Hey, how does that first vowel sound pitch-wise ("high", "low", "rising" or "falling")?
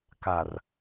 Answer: low